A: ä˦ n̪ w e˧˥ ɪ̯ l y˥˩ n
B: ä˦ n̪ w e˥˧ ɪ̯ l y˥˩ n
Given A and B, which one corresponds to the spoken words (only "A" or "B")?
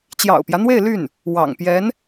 B